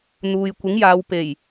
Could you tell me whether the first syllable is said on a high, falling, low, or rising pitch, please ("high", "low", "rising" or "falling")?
low